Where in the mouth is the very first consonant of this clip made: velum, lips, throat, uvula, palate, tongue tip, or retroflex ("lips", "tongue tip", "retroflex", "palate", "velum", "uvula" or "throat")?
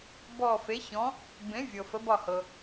lips